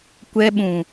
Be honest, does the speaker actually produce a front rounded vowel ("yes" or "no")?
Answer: no